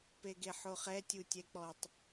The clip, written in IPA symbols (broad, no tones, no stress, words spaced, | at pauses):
peɡeħoχɛ tʲutʲɛk͡pɔtˤ